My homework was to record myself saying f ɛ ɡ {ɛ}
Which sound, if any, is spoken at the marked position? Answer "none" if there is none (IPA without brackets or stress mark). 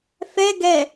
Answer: ɛ